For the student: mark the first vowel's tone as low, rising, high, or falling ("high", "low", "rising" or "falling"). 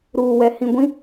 low